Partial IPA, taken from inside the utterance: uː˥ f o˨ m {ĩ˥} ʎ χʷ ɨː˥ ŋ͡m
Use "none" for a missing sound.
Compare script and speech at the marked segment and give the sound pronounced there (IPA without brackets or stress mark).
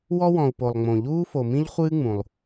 ĩ˥